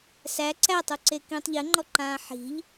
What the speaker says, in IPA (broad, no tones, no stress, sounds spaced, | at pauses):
s æ ǀ æ tˤ u ǀ e k ĩː tˤ ʎ ɘ ŋ͡ǃ ɔ ǃ ãː ħ i̤ ʎ